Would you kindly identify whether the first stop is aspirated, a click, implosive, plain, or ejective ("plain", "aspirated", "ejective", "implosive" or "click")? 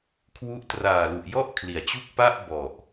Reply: aspirated